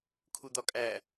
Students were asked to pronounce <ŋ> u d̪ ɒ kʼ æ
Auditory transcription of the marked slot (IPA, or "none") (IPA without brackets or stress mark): kʰ